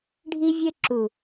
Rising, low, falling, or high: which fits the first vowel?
high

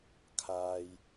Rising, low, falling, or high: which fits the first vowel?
low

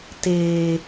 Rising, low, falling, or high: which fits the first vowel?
high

